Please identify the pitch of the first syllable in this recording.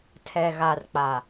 low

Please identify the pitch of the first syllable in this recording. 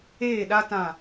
falling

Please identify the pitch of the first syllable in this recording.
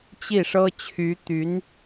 falling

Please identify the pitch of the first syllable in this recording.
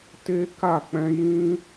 high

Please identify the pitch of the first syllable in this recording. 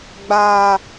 high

